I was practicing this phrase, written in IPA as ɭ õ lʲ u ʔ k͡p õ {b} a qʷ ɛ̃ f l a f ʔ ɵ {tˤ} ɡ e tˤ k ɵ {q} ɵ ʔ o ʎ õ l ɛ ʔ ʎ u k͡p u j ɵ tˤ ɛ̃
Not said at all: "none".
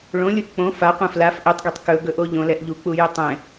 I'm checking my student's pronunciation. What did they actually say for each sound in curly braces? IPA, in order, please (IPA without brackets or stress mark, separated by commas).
f, tˤ, ɡ